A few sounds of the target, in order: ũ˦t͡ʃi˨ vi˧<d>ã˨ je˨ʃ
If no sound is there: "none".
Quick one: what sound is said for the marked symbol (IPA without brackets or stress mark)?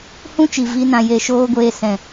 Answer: n